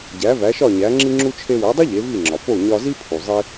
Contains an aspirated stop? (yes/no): yes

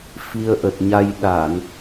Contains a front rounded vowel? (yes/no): no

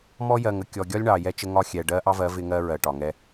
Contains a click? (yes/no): no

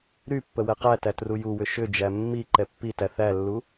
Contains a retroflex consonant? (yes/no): no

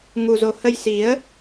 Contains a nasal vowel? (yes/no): no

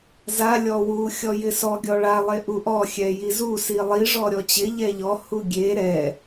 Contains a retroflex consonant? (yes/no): yes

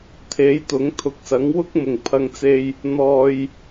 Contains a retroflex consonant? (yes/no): no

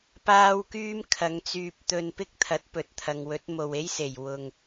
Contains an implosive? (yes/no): no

